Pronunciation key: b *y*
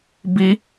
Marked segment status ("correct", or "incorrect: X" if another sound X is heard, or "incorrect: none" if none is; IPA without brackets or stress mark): incorrect: i